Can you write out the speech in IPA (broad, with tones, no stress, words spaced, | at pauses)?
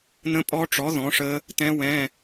n̪ə̃˦˥pʼɔ˦˥ʈ͡ʂɔ˨˥ ðɔ̃˨˥ʂə˦˥ | t̪ɛ̃˦˥wɛ̃˧˥˧